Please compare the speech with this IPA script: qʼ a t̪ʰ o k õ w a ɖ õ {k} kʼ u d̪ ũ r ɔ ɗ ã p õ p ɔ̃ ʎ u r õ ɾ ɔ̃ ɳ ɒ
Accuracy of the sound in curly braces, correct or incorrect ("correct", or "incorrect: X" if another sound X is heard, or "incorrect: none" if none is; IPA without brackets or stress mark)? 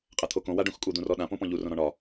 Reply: incorrect: x